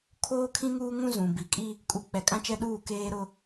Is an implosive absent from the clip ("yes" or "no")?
no